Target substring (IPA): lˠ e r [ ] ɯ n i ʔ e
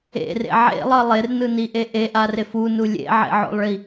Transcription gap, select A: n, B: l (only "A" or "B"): A